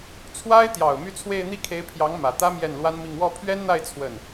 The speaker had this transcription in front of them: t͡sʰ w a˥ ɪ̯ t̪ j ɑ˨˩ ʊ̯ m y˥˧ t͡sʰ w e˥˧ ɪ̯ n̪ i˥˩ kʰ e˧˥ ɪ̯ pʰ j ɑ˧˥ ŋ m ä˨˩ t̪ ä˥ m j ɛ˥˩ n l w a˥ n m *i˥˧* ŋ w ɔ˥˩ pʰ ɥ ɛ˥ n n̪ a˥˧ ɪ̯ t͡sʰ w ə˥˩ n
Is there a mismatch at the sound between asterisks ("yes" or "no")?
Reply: no